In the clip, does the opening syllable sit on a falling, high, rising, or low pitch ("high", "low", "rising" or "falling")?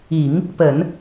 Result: low